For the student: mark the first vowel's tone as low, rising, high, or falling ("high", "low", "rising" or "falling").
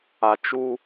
low